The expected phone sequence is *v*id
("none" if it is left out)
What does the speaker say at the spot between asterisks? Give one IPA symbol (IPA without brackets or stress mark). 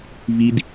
v